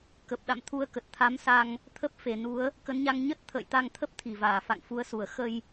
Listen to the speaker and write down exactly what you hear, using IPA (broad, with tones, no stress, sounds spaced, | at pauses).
k ə˨˩ p̚ ɗ a̰˧˨ m t̪ʰ u˨˦ ə̯ k ə˨˩ t̚ t̪ʰ a˨˦ m s a˧ ŋ | t̪ʰ ə˦˥ p̚ f e˨˩ n u˨˦ ə̯ | k ə˨˦ n ɲ a˧ ŋ ɲ ə˦˥ t̚ t̪ʰ ə̰ː˧˨ j t̪ a˧ ŋ t̪ʰ ə˦˥ p̚ t̪ʰ i˧˩ v aː˧˩ f a̰˧˨ ŋ f u˨˦ ə̯ s u˧˩ ə̯ x ə˧ j